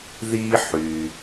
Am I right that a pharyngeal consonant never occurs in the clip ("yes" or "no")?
no